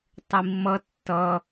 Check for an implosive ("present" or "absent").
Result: absent